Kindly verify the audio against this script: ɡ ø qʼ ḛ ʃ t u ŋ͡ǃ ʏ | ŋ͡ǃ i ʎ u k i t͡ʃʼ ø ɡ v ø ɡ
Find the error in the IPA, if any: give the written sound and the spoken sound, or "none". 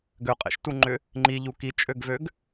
none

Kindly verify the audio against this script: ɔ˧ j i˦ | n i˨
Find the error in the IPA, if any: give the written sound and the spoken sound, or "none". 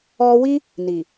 j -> w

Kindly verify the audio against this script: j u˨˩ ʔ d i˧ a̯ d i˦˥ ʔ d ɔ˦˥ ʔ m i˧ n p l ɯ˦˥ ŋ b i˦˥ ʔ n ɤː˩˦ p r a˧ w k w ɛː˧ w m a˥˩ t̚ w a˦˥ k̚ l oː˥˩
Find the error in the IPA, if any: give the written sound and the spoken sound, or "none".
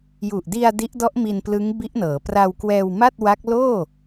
none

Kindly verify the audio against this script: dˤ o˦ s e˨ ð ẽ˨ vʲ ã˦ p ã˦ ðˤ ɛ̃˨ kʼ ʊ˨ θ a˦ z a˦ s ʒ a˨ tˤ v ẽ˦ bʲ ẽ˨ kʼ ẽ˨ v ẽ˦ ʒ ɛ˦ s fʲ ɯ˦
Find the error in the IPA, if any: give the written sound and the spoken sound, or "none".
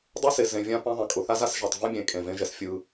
ð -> z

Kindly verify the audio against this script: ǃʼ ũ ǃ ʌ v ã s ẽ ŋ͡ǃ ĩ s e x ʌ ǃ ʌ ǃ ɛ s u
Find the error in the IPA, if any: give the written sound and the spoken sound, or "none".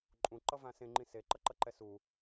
x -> ǃ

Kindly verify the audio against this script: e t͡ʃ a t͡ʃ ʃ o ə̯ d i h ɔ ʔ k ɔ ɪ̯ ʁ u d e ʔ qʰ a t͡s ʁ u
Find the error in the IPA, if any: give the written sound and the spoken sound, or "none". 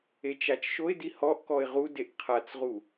ə̯ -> ɪ̯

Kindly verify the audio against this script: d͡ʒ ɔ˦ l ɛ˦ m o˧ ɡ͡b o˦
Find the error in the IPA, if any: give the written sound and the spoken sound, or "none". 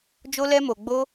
ɔ˦ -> o˦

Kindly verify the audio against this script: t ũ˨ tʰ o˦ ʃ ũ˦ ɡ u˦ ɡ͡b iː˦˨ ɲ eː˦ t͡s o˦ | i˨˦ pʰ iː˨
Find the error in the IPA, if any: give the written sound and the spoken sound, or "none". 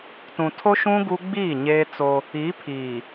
none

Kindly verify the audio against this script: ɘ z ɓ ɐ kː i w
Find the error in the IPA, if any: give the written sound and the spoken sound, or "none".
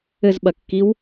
none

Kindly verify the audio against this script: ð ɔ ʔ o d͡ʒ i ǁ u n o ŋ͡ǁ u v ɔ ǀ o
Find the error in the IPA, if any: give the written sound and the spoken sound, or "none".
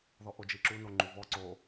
ŋ͡ǁ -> ŋ͡ǃ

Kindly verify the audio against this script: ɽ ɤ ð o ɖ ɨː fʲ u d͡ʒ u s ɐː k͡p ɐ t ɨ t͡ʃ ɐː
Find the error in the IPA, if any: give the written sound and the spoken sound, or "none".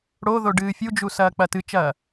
ɤ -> o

